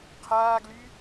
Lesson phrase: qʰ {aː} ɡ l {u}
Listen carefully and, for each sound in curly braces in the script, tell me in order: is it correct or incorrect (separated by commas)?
correct, incorrect